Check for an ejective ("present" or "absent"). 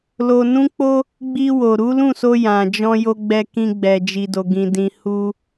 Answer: absent